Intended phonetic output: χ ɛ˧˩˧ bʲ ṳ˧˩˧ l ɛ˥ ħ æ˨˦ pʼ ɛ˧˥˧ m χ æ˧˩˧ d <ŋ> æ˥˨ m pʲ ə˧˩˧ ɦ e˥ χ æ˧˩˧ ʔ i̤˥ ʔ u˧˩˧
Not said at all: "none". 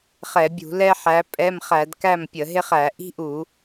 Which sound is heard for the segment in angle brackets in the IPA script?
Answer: k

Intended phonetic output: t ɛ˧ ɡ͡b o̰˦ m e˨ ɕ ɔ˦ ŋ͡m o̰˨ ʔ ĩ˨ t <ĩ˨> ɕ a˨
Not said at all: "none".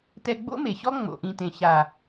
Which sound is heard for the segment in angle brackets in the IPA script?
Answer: ẽ˨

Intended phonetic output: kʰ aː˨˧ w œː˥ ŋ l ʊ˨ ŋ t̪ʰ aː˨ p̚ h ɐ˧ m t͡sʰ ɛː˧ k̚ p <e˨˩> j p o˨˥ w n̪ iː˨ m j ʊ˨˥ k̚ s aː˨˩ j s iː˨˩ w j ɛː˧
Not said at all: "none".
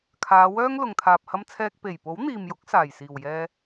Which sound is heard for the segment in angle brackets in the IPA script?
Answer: e˨˩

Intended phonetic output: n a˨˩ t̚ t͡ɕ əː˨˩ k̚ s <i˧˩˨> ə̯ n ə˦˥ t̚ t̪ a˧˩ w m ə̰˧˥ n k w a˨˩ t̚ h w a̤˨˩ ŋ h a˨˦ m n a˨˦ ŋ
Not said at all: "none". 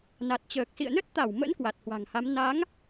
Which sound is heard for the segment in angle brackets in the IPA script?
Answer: ḭ˧˨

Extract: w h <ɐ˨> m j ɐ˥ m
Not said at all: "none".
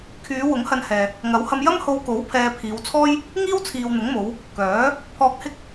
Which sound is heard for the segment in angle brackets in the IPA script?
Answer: ɐ˧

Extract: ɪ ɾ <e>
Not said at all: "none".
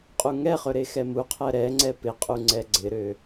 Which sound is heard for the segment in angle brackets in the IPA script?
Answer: ø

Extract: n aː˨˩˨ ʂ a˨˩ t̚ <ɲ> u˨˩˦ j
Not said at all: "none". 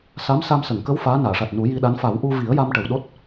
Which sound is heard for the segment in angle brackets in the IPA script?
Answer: n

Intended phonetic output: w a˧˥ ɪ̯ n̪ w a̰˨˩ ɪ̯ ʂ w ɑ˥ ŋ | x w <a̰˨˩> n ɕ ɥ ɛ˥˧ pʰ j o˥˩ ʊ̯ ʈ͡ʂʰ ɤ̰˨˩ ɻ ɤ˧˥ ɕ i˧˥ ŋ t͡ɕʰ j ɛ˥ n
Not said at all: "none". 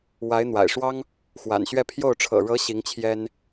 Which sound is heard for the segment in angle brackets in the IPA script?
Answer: a̰˨˩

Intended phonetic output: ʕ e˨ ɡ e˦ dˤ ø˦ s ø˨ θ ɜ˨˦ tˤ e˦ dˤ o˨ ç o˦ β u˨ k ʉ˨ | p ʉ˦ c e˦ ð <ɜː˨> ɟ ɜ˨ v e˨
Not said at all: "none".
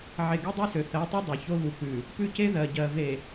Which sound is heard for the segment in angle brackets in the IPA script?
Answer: ɜ˨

